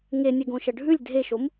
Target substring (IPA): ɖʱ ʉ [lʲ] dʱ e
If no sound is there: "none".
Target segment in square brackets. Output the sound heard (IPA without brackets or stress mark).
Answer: lʲ